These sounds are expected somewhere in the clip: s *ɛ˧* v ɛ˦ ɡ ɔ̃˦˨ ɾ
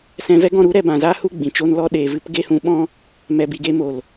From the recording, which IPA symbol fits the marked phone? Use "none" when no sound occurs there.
ɛ̃˧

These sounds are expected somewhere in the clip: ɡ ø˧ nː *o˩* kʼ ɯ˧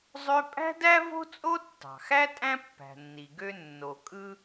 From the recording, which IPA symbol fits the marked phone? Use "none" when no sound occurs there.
o˩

